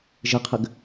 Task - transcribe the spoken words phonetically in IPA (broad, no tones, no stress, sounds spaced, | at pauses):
ʒ ɘ qʰ ɘ ɡ